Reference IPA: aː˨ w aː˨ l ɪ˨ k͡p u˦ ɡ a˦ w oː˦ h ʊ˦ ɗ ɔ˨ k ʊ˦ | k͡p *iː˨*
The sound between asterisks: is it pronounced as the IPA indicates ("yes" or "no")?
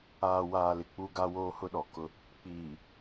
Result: yes